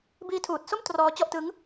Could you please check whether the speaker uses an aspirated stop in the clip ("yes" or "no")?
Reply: yes